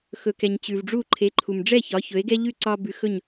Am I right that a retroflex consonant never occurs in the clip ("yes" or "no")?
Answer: no